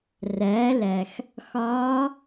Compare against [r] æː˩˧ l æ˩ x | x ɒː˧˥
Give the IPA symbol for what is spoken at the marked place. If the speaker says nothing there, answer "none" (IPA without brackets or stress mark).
r